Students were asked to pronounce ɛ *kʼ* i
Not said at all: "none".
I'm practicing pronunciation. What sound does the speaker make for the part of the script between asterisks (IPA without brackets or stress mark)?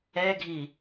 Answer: ɡʱ